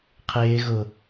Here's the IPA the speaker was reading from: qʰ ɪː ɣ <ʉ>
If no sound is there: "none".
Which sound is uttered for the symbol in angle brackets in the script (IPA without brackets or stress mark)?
ʊ